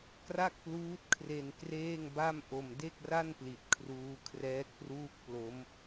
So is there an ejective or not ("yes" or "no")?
no